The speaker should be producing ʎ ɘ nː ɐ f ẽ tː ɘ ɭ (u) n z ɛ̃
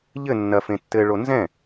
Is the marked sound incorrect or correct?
incorrect